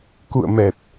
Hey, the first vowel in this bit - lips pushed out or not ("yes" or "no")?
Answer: yes